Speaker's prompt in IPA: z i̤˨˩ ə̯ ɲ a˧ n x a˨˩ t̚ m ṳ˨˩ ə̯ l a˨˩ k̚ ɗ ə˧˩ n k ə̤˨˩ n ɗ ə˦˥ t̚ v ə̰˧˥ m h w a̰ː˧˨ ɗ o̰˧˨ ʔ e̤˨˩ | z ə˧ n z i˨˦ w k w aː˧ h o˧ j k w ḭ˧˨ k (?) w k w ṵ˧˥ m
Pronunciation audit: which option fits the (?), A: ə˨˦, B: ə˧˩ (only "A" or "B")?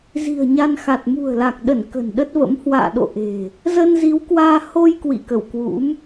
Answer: B